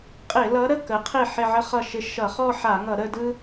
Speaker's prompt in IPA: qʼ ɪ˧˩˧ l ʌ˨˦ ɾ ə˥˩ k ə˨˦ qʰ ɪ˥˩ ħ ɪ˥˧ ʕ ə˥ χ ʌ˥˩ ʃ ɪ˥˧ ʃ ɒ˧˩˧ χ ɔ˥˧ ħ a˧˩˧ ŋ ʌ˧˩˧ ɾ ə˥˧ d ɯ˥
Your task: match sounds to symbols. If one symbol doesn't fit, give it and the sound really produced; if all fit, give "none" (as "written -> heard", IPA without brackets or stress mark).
ɒ˧˩˧ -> ʌ˧˩˧